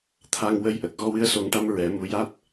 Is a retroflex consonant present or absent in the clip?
present